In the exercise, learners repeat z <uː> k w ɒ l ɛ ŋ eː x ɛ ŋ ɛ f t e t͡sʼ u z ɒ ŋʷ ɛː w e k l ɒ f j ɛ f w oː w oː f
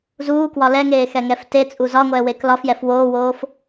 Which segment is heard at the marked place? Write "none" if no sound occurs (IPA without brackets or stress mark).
uː